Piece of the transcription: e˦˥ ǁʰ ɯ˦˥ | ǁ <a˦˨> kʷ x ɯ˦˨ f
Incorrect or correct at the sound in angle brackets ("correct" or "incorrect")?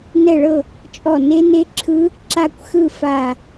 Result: correct